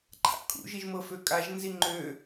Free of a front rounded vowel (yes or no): no